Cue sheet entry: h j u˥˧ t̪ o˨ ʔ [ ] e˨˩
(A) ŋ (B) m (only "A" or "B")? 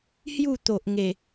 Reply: A